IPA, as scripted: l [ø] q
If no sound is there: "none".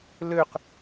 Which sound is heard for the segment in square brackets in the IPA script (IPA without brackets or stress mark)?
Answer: ø